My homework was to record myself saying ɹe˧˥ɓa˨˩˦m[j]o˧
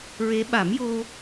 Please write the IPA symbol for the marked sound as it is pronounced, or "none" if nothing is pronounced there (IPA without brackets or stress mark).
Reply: j